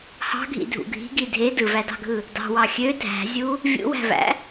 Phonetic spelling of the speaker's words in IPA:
h ɑ̤ ɡʱ ḭ dʱ ṵ ɡʱ i̤ ɡ i dʱ e d ɯ v æ d ɑ̤ ɡʱ ɯ | d ɑ̤ w ɑ xʲ ø dʱ æ̤ zʲ u | vʲ ṵ w æ̤ v æ̰

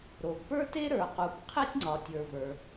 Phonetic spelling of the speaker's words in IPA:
ɾ o˩ ɡ p ə˞˥ t e˥ ɾ ə˞˩ q u˩ p qʰ e˥ tʲ ŋ͡ǀ ɒ˩ tʲ ə˞˩ v ə˞˩

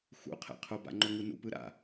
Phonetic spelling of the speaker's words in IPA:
x ṵ qʰ ɛ̰ qʰ o b a̰ ŋ͡ǃ o ŋ ɯ n ṵ p ɯ ɾ a̰

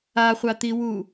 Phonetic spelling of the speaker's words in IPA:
a χʷ a t̪ i w u

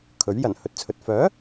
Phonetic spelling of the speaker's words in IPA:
kʰ ɵ˨˥ ɥ j ɐ˨˩ n h ɵ˨ t̚ t͡sʰ ɵ˨ t̚ f œː˨˥

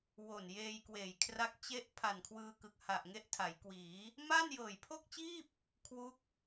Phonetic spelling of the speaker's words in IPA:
w o˨˩ n j eː˧ j k w eː˨˩ j kʰ r a˦˥ k̚ t͡ɕ e˦˥ ʔ pʰ a˨˩ n kʰ w ɯː˧ k ɯ˨˩ k̚ h a˨˩ ʔ ŋ e˦˥ ʔ tʰ a˩˦ j k w iː˩˦ | m aː˥˩ n j ɤː˨˩ j pʰ o˥˩ k̚ t͡ɕ iː˥˩ p̚ | kʰ w u˦˥ k̚

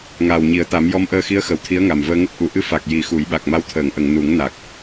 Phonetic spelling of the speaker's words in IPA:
ŋ aː˨˩ w ɲ i˨˩˦ ə̯ t̪ a˨˩˦ m j ɔ˧˥ m ʔ əː˧ x i˧˥ ə̯ x ə˨˩˨ w t̪ʰ i˧˥ ə̯ ŋ a˨˩ m v əː˧ ŋ ə˦˥ k̚ ʔ u˨˩˨ ʔ ɨ˧ f a˨˩ k̚ j i˨˩˦ x u˨˩˦ j ɓ a˨˩ k̚ m a˧˥ w t̪ʰ əː˨˩˨ ŋ ʔ ə˨˩˨ ŋ n u˨˩˦ ŋ n a˨˩ k̚

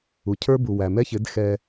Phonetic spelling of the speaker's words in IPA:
u˨ cʰ ə˞˦ b u˨ w æ˨ m ɛ˦ ç ɪ˨˦ d x ɛ˦

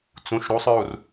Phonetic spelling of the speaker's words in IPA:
t͡s ũ ʃ ɾ u sˤ ɹ u r

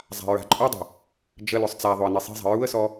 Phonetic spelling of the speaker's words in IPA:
zˤ a̤ ɹ a̤ ǃʼ u dˤ ə̤ | d͡ʒ ə l ʊ sˤ t͡s a ðˤ ʊ ə̯ n i sˤ i̤ zˤ ə̤ ɹ u ə̯ s ɔ

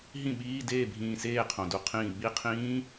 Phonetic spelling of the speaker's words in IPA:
ɦ ĩ˥˩ ɓ iː˧˥˧ d eː˥˩ bʱ ĩː˧˩ s eː˥˩ qʰ õ˩ d u˧˩ qʰ ĩː˧˩ ɓ i˧˥˧ qʰ ĩː˦˥

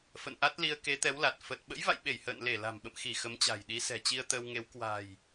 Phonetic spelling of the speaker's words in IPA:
f ə̰˧˨ n ʔ a˦˥ t̚ l i˧ ə̯ k e˨˦ t̪ ɛ˨˦ w l a˨˩ t̚ f ə˨˩ t̚ ɓ ə̰˧˥ j v a̰˧˨ j ɓ e˧˩ j h ə̰ː˧˨ n l e˧˩ l a̤˨˩ m ɓ ə̰˧˨ m x i˧˩ x ə˨˦ m t͡ɕ a̤˨˩ j ɗ i˨˦ s ɛ̤˨˩ t͡ɕ i˧ ə̯ t̪ əː˧ w ŋ e˨˦ w k w a̤˨˩ j

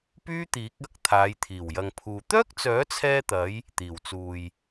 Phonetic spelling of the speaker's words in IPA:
p yː˥ t̪ iː˨˥ k̚ ɐ˨˥ k̚ t̪ʰ aː˨˧ j t̪ʰ iː˨˩ w j ɐ˨ ŋ pʰ uː˨ t̪ œː˥ k̚ t͡s œː˨˥ t͡sʰ ɛː˧ t̪ ɐ˨˧ j | t̪ iː˨˩ w t͡s uː˨ j

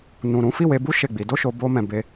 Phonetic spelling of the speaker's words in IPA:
n ũ˨ ɾ ũ˨˦ f i˦˨ w e˧ b u˦ ʃ e˦˨ ɡ͡b i˨˦ d o˦ ʃ o˧ b o˦ m ɛ̃˧ b e˧

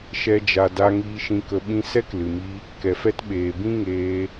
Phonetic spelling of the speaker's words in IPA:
ʃ ɛ˧ d͡ʒ a˨ d a˧ ŋ iː˧ ʃ ĩ˧ k ə˧ ɓ ĩ˧ s ɛ˦ k l ɨ˨ m i˦ | k ɛ˨ f ɛ˦ t ɓ eː˨ b ĩ˦ ŋ eː˧

